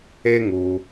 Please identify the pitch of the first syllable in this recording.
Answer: high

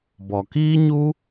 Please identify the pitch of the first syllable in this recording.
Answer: low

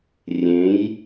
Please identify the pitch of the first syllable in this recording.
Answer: rising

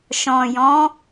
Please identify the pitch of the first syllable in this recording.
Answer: low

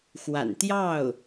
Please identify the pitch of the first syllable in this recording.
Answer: low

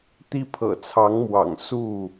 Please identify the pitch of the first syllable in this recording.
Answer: high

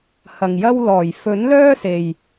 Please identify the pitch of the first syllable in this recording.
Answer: low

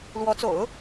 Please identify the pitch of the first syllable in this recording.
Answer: rising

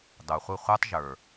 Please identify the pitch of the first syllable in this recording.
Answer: low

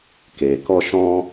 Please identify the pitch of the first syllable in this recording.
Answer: low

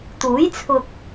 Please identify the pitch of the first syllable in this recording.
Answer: rising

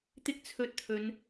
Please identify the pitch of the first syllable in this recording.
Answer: high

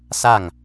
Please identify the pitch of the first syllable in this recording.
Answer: falling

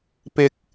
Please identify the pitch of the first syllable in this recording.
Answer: low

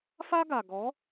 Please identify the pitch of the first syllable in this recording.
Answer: high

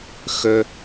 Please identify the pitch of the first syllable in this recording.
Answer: high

